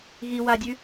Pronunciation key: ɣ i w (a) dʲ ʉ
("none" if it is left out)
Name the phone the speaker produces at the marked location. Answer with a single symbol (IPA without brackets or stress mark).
a